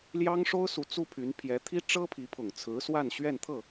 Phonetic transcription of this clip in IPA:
l j ɑ˥ ŋ ʂ o˥ ʊ̯ s u˧˥ t͡s u˥ pʰ y˧˥ n pʰ j ɛ˧˥ t̪ʰ i˥ ʈ͡ʂ ɤ˥ pʰ i˧˥ pʰ ʊ˨˩ ŋ t͡sʰ ɹ̩˧˥ s w a˥˧ n ɕ ɥ ɛ˥˧ n t̪ʰ ɤ˥˩

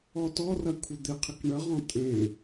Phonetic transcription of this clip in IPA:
ɔ t ɔ r ɐ kʷʰ ɪ d̪ ɪ qʰ ɪ k ɳ ə ʁ ɔ̃ tʼ ẽ

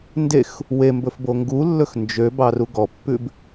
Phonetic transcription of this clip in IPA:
n d e x | w e m b ɵ f b o ŋ ɡ u lː ɵ x n d͡ʒ ø b ɑ r u ɡ ɔ pː ʉ b

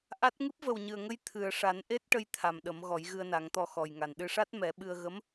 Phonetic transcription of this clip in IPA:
ʔ a˦˥ t̚ ŋ ɨ˦˥ p̚ v ə˨˩ w ɲ ɨ˨˩ ə̯ ŋ ə˧ j t̪ʰ ɨ˨˩ ə̯ ʂ a˨˩˦ n ʔ e˦˥ t̚ ʈ ə˧ j t̪ʰ a˨˩ m ɗ ə˨˩˦ m ɣ ɔ˨˩˦ j ɣ ɨ˧ ə̯ n a˨˩˦ ŋ t̪ ɔ˧ x ɔ˨˩ j ŋ a˨˩ n ɗ ɨ˧ ʂ a˦˥ t̚ m ɛ˨˩˦ ɓ ɨ˧ ə̯ ɣ ə˧˥ m

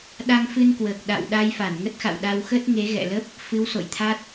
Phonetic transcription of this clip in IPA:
ɗ a˧ ŋ f ɨ˧ n k w əː˨˩ k̚ ɗ a̰˧˨ w ɗ a˧ j f a˧˩ n ŋ ə˦˥ t̚ x a̰˧˨ w ɗ a˧ w x ə˦˥ t̚ ŋ e˨˦ ɣ ɛ̰˧˨ l ə˦˥ p̚ | f ɨ˨˦ w s o̰˧˨ j t̪ʰ a˦˥ t̚

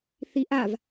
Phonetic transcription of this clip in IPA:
θ i ʔ a v

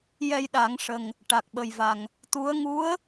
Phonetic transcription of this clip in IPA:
j ɛ˧ j ɗ a˨˩˦ ŋ ʂ ə˨˩ ŋ | ʈ a˨˩ k̚ ɓ ə˨˩ j v a˨˩ ŋ | t̪ u˧˥ ə̯ ŋ u˧˥ ə̯

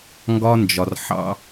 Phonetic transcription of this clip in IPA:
ŋ ɡ ɒ˦ n d͡ʒ ɒ˨ r ħ ɑ̰˦

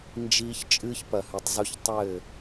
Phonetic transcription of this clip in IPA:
n d͡ʒ iː˦ ç t͡ʃʼ ɨː˦ ç p ɐ˨ h ɨ˨ tˤ z u˦ ç tˤ ɘː˦˨

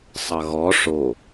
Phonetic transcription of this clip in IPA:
sˤ ʌ ɣ ɔ ʂ o

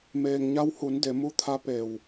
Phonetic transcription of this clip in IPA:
m eː˩ ŋ ɲ a˧ w h u˩˧ n d e˩˧ m u˧˥ t̪ʰ a˧˥ p e˩ w

